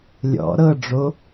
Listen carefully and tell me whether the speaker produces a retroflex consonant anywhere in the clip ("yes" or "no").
yes